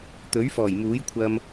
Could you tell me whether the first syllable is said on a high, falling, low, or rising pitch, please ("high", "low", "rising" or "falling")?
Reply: rising